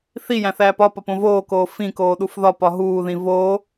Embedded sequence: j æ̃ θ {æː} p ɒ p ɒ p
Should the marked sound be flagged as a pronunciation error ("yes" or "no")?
no